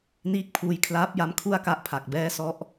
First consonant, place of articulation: alveolar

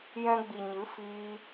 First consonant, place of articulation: palatal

